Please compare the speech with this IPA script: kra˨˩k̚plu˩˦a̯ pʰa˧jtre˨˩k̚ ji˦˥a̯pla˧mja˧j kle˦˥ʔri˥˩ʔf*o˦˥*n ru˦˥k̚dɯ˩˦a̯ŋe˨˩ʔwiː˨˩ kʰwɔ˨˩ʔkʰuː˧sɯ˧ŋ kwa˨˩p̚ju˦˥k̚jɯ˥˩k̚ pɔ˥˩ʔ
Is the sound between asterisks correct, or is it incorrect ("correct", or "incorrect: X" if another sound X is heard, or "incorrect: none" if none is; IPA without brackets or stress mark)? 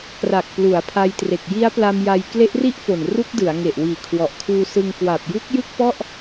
incorrect: o˨˩